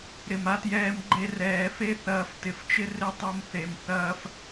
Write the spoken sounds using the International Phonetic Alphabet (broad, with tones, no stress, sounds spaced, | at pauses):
ɾ ɪ˨ m a˦ t j ɛː˦ m ɡ͡ǃ e˧ r ɛː˨ f e˦ θ ɐː˧ f t ɪ˨ f t͡ʃ ɪ˦ r ɪ˦ tˤ o˧ m θ e˨ m θ ɐː˦ f